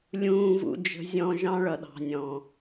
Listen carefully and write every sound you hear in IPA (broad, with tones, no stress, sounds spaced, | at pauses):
lʲ ũː˨ v ṵ˨ d͡ʒ ə̤˨ zʲ ɔ̃˨ ʒ ɑ̃˦ ɭ ʌ˨ ɗ ɑ̤˨ nʲ ɔ̃˨